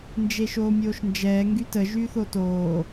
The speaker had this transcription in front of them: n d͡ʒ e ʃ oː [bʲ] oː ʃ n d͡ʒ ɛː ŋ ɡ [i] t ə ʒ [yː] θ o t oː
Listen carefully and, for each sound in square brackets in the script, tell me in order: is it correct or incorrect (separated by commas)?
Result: incorrect, incorrect, correct